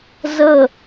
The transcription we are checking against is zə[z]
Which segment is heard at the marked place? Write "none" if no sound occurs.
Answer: none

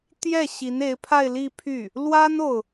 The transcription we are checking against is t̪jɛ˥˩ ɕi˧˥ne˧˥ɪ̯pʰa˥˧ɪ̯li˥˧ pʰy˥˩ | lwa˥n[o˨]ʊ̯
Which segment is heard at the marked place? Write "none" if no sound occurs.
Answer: o˨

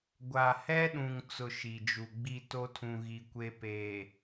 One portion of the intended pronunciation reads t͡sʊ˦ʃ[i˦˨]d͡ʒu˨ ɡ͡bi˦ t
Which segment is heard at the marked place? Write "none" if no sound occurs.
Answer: i˨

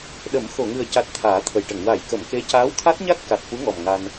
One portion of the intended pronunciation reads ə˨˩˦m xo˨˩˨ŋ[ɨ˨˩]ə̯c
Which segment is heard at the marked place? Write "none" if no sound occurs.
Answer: ɨ˨˩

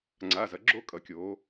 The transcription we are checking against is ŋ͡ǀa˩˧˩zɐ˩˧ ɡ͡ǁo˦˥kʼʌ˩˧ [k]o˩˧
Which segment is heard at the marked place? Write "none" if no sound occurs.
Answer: kʲ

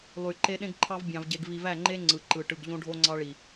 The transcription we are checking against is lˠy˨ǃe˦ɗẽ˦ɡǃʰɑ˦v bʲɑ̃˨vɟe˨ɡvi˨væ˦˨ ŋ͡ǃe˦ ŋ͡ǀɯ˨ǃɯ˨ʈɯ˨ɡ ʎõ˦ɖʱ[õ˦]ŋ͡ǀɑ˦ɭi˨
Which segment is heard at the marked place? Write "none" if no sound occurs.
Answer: o˦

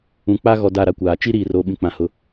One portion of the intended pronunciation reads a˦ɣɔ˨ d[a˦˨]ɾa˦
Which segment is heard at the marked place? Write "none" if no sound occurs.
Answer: a˦˨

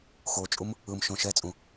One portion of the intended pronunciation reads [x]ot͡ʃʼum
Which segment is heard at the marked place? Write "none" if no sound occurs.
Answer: x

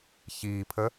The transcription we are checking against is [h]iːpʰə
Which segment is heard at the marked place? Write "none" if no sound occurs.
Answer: ç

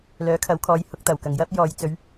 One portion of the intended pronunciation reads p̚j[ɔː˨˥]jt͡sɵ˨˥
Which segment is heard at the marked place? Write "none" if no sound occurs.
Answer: ɔː˨˧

